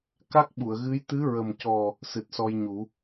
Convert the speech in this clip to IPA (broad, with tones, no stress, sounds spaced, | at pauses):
k a˦˥ k̚ ɓ u˨˩˨ ə̯ ɣ ɨ˧˥ j t̪ ɨ˧˥ ɹ ə˨˩ m c ɔ˨˩ | s ɨ˨˩ t̚ s ɔ˧ j ɲ u˨˩˦